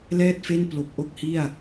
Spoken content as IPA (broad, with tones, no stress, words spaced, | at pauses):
lɛː˥˩t̚fe˥˩n plo˨˩k̚ʔo˥˩k̚hi˥˩a̯